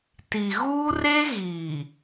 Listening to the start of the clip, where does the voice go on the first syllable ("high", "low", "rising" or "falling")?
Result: low